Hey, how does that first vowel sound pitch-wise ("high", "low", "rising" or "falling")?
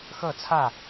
falling